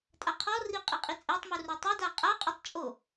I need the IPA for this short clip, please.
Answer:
tʼ a qʰ ɔ r i qʼ i qʼ i t͡sʼ e tˤ m u r o tˤ e d a qʼ a qʼ u tˤ t͡ʃʼ o

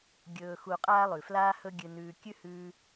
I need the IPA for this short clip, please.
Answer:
ɡʲ ɵː˧ x u˧ qʼ aː˥ lˠ ʉ˩ f l aː˥ h ɵ˥ ɡʲ ɨ˧ n ʉː˧ kʲ ʉ˥ h ʉː˧

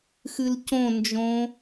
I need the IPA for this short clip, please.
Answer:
x ɨ l c õ n d͡ʒ õ

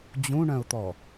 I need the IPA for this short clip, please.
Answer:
d͡ʑ ũ ɳ œ̃ ʊ̯ t̪ ɔ

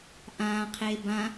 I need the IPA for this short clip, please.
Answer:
ʔ ãː qʰ eː b ã

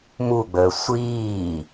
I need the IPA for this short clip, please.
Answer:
m u ɡ͡b əː sʷ iː

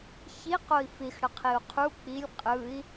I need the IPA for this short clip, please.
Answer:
ç i q o i̯ f i x ɽ ə qʰ i u̯ qʰ u k͡p i lʲ qʼ ɯ i̯

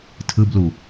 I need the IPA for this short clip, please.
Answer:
tʰ ɯ b l u

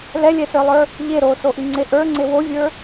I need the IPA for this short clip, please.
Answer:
l ɛ lʲ ɛ s ə˞ lˠ ə˞ | ʎ e ɾ o s o ʔ i ŋ͡ǀ e ʔ ə˞ ŋ͡ǀ e w o vʲ ə˞

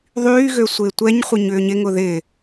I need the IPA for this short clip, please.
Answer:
ðˤ yː ɣ ø sʷ ɪː tʷ ɛ ɲ χʷ ɪ ɲ ʏː ɲ ɪ ŋ ʊ ð ɪː

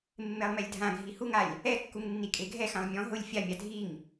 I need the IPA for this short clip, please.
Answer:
mː e lˠ m ɛ lʲ dʱ ã ɡʱ i h u ŋ a lʲ | ɛ kː u ŋ nː i kʼ e ɡʱ ɛ x ã lˠ mʲ ɔ̃ ɦ ʊ lʲ fʲ a mʲ a dʱ i ŋ

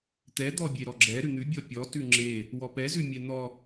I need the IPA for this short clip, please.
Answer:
t̪ ɛ d̪ ɔ bʲ e ɾ ɔ ɡ͡ǁ ɛ ɾ ʉ n̪ ʉ bʲ ɔ pʲ ɔ t ʉ ŋ͡ǁ e | w ɔ p ɛ z ʉ mʲ ɛ n̪ ɔ

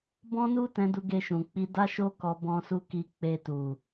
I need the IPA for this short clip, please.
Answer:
b ɔ̃˦ n u˦ t ɛ̃˧ d u˧ ɡ e˧ ʃ ũ˨ k͡p i˧ d a˦ ʃ o˦ k ɔ˧ b ɔ̃˦ s u˦ k i˦ k͡p e˧ t u˨

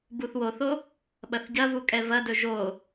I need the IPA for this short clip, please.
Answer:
b u θ w o θ o | ɓ ɐ θ ɟ ɐ v u kʼ ɛ v ɐ d ɵ ʒ o

